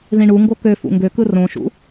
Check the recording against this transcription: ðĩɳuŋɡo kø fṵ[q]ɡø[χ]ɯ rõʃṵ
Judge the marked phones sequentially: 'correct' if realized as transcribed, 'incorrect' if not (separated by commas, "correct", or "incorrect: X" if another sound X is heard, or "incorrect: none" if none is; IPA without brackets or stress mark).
incorrect: ŋ, incorrect: k